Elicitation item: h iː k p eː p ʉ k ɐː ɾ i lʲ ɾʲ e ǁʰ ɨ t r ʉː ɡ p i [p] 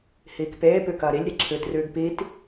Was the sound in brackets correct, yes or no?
no